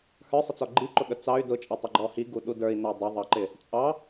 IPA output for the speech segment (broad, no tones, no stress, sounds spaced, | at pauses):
h ə˞ sˤ ə t͡s ɔ ɡ͡ǃ i ǃ ʊ ɠ ə t͡s ɑ y̯ d ʊ t͡ʃʼ ʌ tˤ ə ɡ͡ǃ ɔ h i ɡ u ɗ u d ə˞ i̯ n æ dˤ ʊ ðˤ ɑ ǃ ɪ | t͡sʼ ɑ